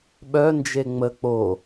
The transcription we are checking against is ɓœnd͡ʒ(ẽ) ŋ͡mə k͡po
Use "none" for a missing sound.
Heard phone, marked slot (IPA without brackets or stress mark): e